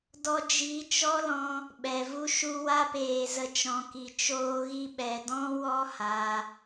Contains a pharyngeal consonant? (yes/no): no